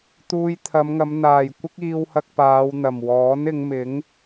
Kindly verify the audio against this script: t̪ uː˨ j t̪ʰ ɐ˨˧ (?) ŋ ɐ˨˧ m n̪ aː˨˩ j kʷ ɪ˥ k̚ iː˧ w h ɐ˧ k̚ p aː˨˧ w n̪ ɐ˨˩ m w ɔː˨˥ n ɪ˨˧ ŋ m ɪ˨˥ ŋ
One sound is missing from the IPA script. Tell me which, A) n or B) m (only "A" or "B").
B